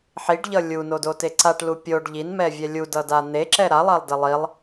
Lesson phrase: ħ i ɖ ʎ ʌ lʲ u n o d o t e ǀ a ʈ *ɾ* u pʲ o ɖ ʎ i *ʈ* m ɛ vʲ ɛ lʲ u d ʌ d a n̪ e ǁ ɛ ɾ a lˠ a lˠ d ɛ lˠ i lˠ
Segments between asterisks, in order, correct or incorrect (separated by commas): incorrect, incorrect